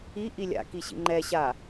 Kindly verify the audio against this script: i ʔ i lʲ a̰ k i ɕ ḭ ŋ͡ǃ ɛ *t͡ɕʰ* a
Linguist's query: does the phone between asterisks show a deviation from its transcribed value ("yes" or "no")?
yes